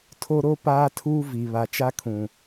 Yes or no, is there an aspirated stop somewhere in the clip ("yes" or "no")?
yes